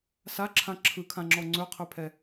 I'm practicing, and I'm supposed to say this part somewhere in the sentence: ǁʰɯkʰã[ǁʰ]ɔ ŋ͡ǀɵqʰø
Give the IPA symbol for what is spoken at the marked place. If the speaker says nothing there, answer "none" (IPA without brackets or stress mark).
ŋ͡ǁ